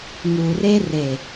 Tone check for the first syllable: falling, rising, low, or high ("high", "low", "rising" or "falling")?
low